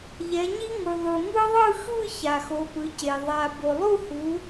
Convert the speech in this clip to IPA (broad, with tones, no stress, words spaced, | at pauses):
ʎɛ˨˦ɲi˦˥ ŋu˨ðˤu˨ŋɯ˦˥ ðˤɯ˥˧ xɯ˥˧ ça˨xo˨˦pɯ˨˦ce˨ ðˤa˨ bo˨lˠu˥˧hu˨˦